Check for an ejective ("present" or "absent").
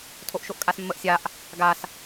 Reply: present